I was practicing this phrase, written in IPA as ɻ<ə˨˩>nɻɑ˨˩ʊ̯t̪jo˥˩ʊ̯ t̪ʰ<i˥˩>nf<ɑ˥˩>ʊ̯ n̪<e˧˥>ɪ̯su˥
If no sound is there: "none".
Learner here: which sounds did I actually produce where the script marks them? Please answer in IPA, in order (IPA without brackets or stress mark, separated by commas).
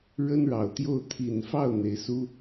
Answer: ə˥, i˨˩, ɑ˥˩, e˧˥